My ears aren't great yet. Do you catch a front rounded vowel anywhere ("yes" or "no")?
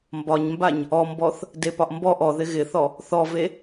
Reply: no